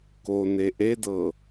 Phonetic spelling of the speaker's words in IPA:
k o n e ʔ e d ɤ

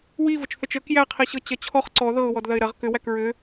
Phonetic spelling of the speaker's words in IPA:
w i v ə t͡ʃ θ ə t͡ʃ ə k j æ qʰ i ɕ ɤ t͡ɕ ɐ t͡ɕʰ ɔ χ ǀ ɔ ð ɤ ʊ̯ w ɔ d ð ɐ ɪ̯ ɾ ɐ ʁ k ʏ w æ k ɹ ʏ

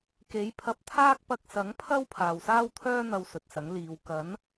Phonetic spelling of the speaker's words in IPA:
k e˨˥ j pʰ ɐ˧ p̚ t̪ʰ aː˥ k̚ p ɐ˧ k̚ s ɐ˨˥ ŋ pʰ ɐ˥ w pʰ aː˨ w s aː˥ w t̪ʰ œː˥ n̪ ɐ˧ w s ɵ˨ t̚ s ɐ˨˥ ŋ l iː˨˧ w k ɐ˨˥ n

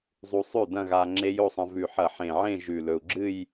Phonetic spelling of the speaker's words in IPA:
zˤ u˧ sˤ ʉ˥˩ d ɐ̃˥˧ ɣ a˧ ŋ͡ǁ e˦˥ j o˥˧ sˤ ɐ̃˧ v ʉ˨˩ ħ ɐ˧˩˧ ħ ẽ˨˩ ʕ ẽ˥˧ ʒ ʉ˨˩ l ɵ˨˩ u̯ ɡ͡ǁ ɨ˥˧ j

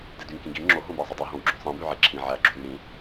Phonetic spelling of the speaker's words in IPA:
d e d y ŋ k ĩ ɡ i ŋ͡ǁ o ɦ õ b æ zˤ y dˤ i ɦ õ w ɡ͡ǁ õ sˤ ĩ b y ʕ e ǁʰ ĩ ʕ æ ɡ͡ǁ u ɾ y ɾ ĩ

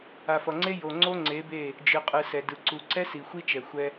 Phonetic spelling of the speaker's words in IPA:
a˨ f ʌ˨ ŋ͡ǀ e˦ j o˨ ŋ͡ǀ o˦ ŋ͡ǀ e˨˦ b e˦˨ | d͡ʒ ɯ˨ qʼ ɯ˨ s ɛ˨ d ɯ˨ ǀ u˨ ǀ ɛ˦ s i˨ xʷ i˦ t͡ʃ ɛ˨ xʷ ɛ˦

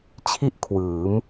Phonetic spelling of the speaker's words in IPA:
t͡ɕʰ i˥˩ ʔ kʰ w ɯː˩˦ m

